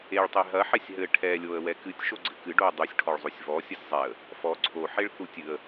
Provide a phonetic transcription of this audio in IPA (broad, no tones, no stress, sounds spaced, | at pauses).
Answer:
e ɭ tˤ e ɦ ɐ ħ ɛ sʲ ɦ ɘ ʈʰ ɛ lʲ o ə̯ w ɛ k ɨ tʲ ʃ o ɡ͡ǀ ɘ k ɨ ɖ o ə̯ dˤ u sʲ ʈʰ ɔ ɭ zˤ o sʲ v ɔ sʲ ɐ sʲ zˤ ɛ ə̯ | f ɔ ǀʰ o ħ e ɭ θ u tʲ ɨ ə̯